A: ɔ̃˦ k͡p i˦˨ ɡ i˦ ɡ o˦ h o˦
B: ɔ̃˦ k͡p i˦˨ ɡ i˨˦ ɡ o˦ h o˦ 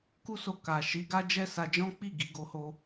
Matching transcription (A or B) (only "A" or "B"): B